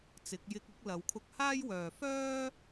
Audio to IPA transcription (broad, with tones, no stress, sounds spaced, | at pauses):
t͡s ɪ˨˥ k̚ j ɪ˧ k̚ ʊ˥ k̚ l ɐ˨˧ w kʰ ʊ˧ k̚ h aː˥ j w œː˨ f œː˥